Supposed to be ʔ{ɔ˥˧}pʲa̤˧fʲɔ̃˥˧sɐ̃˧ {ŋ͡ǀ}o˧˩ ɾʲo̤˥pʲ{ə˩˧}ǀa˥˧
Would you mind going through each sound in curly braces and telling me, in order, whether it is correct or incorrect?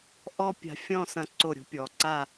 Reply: incorrect, incorrect, incorrect

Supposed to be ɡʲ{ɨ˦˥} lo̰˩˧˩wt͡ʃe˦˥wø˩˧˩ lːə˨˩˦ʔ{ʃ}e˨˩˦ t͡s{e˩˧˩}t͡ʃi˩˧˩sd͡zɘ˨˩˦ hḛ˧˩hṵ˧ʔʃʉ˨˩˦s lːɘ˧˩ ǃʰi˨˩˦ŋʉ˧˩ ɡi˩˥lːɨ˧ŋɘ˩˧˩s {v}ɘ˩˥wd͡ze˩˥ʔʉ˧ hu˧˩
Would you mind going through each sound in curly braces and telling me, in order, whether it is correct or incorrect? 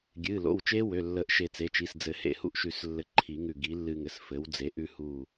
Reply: incorrect, correct, correct, incorrect

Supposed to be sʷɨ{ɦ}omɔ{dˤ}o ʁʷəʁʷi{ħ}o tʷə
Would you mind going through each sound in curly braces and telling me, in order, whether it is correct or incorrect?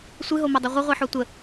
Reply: correct, correct, correct

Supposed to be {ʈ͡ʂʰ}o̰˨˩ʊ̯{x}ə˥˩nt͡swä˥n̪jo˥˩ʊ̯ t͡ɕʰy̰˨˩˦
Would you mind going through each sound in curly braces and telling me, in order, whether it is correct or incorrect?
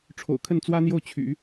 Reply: correct, incorrect

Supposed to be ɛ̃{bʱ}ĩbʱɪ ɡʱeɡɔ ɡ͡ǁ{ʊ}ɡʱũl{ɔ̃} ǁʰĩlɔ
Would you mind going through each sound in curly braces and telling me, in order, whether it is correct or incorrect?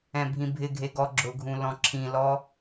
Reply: correct, correct, correct

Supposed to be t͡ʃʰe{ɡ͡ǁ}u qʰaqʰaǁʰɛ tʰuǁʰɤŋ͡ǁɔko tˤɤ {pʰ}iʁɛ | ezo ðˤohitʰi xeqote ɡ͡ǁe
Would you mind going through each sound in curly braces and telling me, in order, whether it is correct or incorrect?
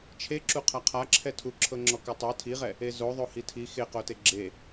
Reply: incorrect, incorrect

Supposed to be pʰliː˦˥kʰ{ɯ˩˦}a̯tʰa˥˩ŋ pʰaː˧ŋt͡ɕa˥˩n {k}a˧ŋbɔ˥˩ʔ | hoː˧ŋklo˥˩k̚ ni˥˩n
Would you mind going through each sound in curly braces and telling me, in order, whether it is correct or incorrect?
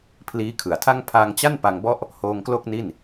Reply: correct, incorrect

